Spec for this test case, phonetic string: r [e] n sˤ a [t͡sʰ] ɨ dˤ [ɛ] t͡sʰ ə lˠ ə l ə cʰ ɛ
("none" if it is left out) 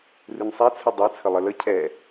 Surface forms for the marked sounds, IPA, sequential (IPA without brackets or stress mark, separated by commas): ɨ, t͡sʰ, ɛ